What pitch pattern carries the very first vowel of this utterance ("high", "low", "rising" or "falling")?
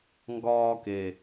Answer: high